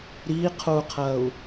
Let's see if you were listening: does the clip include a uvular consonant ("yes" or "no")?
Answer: yes